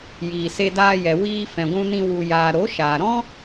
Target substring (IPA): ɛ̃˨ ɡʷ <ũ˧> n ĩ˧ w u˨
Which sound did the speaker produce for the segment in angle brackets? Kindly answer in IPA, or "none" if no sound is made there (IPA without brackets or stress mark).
ũ˧